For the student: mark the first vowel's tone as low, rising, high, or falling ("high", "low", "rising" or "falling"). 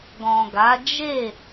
low